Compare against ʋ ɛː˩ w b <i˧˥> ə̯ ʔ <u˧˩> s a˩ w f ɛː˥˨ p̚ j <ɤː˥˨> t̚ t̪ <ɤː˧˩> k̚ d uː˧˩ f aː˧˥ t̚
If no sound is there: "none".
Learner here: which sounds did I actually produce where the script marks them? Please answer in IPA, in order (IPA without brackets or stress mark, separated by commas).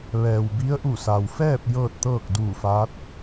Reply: i˧˥, u˧˩, ɤː˥˨, ɤː˥˨